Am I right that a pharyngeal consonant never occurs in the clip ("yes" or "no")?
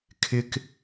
yes